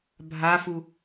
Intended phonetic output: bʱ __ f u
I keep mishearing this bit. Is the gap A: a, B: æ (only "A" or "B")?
A